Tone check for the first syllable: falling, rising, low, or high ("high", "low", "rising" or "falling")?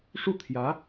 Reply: falling